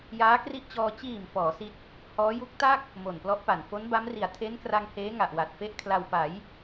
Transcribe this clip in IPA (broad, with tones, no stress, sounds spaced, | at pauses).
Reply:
j aː˦˥ k r i˦˥ ʔ t͡ɕ ɔː˧ t͡ɕ iː˨˩ m f ɔː˩˦ s i˦˥ t̚ | h ɔː˦˥ j u˦˥ k̚ t a˥˩ k̚ | m o˨˩ n p l ɔ˦˥ ʔ p a˨˩ n f o˦˥ n b a˦˥ m r i˨˩ a̯ tʰ e˦˥ n k r a˧ ŋ h eː˦˥ ŋ a˨˩ ʔ w a˨˩ t̚ f e˦˥ ʔ kʰ l a˧ w p a˩˦ j